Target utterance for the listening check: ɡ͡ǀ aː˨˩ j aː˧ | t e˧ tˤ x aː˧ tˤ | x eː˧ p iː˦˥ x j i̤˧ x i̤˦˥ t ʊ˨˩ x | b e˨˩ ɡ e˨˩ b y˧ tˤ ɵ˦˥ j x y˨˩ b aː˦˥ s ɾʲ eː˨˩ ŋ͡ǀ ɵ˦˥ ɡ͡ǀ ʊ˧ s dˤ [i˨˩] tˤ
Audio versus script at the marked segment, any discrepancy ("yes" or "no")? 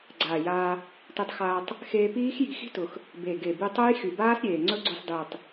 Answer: no